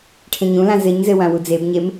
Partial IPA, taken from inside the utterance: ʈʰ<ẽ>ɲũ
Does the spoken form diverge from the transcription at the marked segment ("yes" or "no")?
no